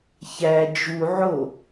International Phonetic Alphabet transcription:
ç æ d͡ʒ u ʕ o

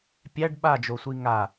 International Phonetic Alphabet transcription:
pʲ æ ɖ ɓ a d͡ʒ o sʷ i ŋ a

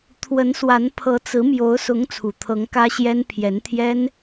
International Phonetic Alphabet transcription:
t̪ʰ w ə˧˥ n s w a˧˥ n pʰ ɤ˧˥ t͡s ɹ̩˧˥ m j o˧˥ ʊ̯ s ʊ˧˥ ŋ t͡sʰ u˨˩ t̪ʰ ɤ˧˥ ŋ k ä˥ ɕ j ɛ˥ n pʰ j ɛ˧˥ n t̪ʰ j ɛ˥ n

